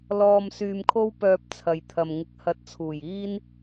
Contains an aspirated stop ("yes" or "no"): yes